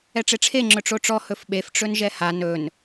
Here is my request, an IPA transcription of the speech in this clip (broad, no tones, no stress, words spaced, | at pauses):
ɛʈ͡ʂeʈ͡ʂʰe ŋ͡ǁɵʈ͡ʂoʈ͡ʂɔ hɵfɓef ʈ͡ʂɵnʒɛha nɵn